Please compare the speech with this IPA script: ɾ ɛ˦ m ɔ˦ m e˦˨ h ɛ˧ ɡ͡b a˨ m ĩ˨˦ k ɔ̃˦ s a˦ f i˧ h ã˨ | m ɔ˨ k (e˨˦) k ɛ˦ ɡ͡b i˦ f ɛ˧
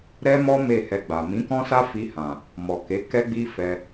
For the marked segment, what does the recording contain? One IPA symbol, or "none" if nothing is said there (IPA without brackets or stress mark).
e˨˦